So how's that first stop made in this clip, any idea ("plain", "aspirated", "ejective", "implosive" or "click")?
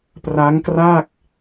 plain